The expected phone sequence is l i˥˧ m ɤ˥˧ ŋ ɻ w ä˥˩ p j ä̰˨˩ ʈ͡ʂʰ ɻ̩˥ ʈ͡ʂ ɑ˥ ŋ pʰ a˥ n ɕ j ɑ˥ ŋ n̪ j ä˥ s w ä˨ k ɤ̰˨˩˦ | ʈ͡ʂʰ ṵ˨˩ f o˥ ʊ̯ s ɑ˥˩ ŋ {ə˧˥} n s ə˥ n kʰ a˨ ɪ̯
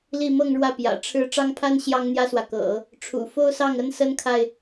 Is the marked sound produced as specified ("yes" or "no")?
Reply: no